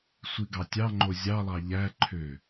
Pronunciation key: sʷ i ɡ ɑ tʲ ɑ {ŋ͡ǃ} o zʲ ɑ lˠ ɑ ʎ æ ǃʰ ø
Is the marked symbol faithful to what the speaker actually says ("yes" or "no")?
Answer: yes